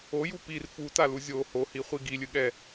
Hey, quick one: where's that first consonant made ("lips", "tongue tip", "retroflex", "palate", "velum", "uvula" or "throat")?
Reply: palate